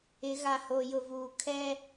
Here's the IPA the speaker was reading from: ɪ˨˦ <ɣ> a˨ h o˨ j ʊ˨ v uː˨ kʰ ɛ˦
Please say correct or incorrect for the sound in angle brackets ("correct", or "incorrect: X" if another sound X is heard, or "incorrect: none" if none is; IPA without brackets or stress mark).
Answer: correct